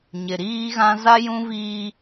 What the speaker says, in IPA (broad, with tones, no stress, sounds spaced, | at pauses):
ɲ ɪ˨ ɾ iː˦ ɣ ã˦ z a˦ j ũ˦ v iː˦